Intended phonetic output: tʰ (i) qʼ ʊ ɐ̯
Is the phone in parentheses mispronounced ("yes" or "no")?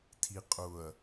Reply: no